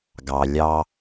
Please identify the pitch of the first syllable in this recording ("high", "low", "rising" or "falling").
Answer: low